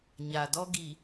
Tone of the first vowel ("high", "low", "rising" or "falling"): low